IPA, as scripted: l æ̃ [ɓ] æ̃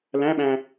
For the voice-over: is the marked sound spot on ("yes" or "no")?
yes